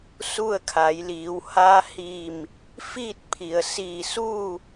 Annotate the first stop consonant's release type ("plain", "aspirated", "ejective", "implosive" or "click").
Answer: aspirated